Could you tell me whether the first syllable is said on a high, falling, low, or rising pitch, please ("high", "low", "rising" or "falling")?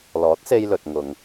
rising